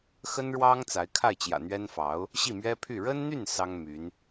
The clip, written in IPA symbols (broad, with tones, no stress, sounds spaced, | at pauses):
x ə˥ n ɻ w ɑ˥ ŋ t͡s a˧˥ ɪ̯ kʰ a˥˩ ɪ̯ t͡ɕ j ä̰˨˩ n̪ ɥ ɛ˥ n f ɑ˧˥ ʊ̯ | ɕ i˥˩ m ɥ ɛ˥ pʰ y˥˩ ɻ ə˥ n n̪ y˥˩ n s ɑ˥ ŋ m y˧˥ n